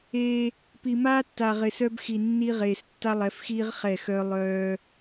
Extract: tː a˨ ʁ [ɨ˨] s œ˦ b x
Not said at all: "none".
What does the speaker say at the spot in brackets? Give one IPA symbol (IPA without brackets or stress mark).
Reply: ɪ˨